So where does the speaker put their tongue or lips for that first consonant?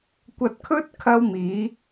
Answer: velum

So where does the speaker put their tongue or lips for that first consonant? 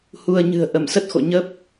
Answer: throat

